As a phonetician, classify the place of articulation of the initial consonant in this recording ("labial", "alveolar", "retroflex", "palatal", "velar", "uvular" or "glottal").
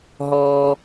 glottal